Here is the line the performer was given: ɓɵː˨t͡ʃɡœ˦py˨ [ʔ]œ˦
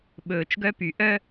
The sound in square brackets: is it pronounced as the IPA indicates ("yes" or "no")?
yes